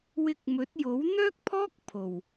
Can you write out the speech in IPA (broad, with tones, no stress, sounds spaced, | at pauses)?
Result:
w ɪ˧ k̚ m ɵ˨˥ t̚ j o˨˥ w n̪ œː˥ k̚ pʰ ɔː˥ k̚ pʰ o˨˩ w